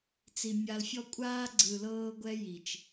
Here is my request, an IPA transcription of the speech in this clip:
t͡s i˨ mʲ a˨ l fʲ ɔ˦ kʷʼ aː˦ ɡ͡ǀ ɯ˨ l ɤː˦ ɡʷ ɛ˦ j i˨ t͡ʃ

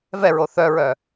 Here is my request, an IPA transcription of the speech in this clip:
v ɛ ɹ o θ œ ɹ œ

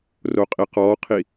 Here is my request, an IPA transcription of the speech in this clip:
r o qʼ i q ɔ qʰ i

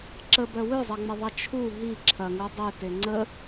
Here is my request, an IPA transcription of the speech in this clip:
ǁ ə b œ w ø zˤ ɐ ŋ͡m ə ðˤ ɐ t͡ʃʰ u ɦ i ǁʰ ɐ ŋ u dˤ ø t e ŋ͡ǀ ə

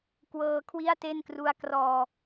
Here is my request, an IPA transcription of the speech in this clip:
k w ɤː˧ kʰ w i˥˩ a̯ t e˥˩ n k r u˦˥ a̯ k r ɔː˧

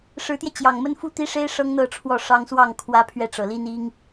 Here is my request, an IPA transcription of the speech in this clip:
ʂ ɻ̩˧˥ t̪ j ɛ˧ t͡ɕ j ɑ˨˩ ŋ m ə˥ n f u˥˩ t̪ i˥ ʂ e˥ ɪ̯ ʂ ɤ˥ ŋ n̪ ɤ˥˧ ʈ͡ʂʰ w ɔ˥˩ ʂ ɑ˥ ŋ s w ɑ˥˩ ŋ kʰ w ä˥ pʰ ɥ ɛ˥˩ ʈ͡ʂ ɤ˨˩ l i˥ n i˥ ŋ

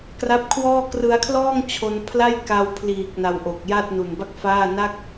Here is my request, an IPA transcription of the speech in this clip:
k r a˦˥ p̚ kʰ w ɔː˥˩ k r ɯ˧ a̯ kʰ l ɔː˥˩ ŋ t͡ɕʰ o˧ n pʰ l a˥˩ j k a˧ w pʰ l iː˨˩ k̚ n a˧ w ʔ o˨˩ k̚ j a˥˩ t̚ n u˨˩ n b a˥˩ k̚ f aː˥˩ n a˥˩ k̚

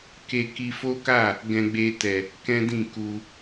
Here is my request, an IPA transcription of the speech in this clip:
k e˧ k i˧ f o˦ k a˦˨ | ɡ ɛ̃˧ ɡ͡b e˧ t ɛ˨ | k ɛ̃˦ d ĩ˦˨ k u˧

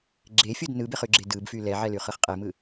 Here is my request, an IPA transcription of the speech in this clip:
ɡ͡ǁ e fʲ o d n ɯ b e χ y ɡ͡ǁ e d ɯ b f y l ɛ ʕ ɛ l y χ ɯ χ qʼ e m ɯ

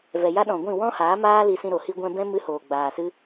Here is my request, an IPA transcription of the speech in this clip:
v ɛ˨ j a˦ ɗ ɔ̃˨ ɡʷ ĩ˦˨ w ɔ̃˦ h aː˨˦ m aː˦ l i˧ s ĩ˧ ɾ o˨ h i˧ ɡʷ ɛ̃˧ b ɛ̃˦ m ɨ˦ h oː˨ ɡ͡b aː˨ s ɨ˦

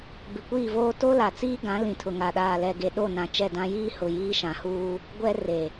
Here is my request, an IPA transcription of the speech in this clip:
b ɪ˨ kʷ iː˦˨ v oː˦ t o˦ l a˨ t͡s iː˦ ɡ ã˨˦ l ĩ˨ tʰ ʊ˨ ŋ a˨ ɗ aː˨ l ɛ˨ ɡ e˨ ɗ o˦˨ n ã˨ t͡ʃ ɛ˦˨ d ã˦ j iː˦ h ʊ˨ j iː˦ ʃ ã˨ h uː˦ | ɡʷ ɛ˦ r e˨

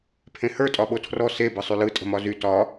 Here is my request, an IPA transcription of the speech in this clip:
pʰ ẽ h ə˞ tʼ ɒ ɓ o tʰ r ɔ s e b ɯ sˤ y l ɯ tʼ ə̤ m ɒ z y t ɒ

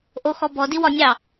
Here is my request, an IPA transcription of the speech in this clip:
ʔ o x ɔ b ɔ d i w ɒ nʲ ɑ

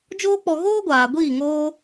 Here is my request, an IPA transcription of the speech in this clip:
d͡ʒ oː˦ k͡p ɔ˧ ɣ oː˦ ɡʷ aː˨ ɡʷ iː˦˨ ŋ oː˦

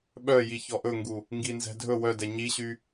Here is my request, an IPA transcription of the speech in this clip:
ɓ œ j i ç ɔ ʔ ɵ ŋ ɡ u | ŋ ɡ i n z ɛ̤ dʱ ɵ w œ d ɛ ɲ i ɕ y

